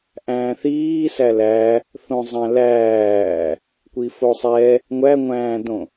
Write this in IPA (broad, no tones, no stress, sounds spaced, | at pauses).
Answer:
ʔ æ̃ː θ iː s æ l æ | θ õ zˤ æ̃ l æː | kʷ i f o sˤ ɛ | ŋʷ æ ŋʷ æ̃ː d õ